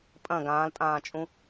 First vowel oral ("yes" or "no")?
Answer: no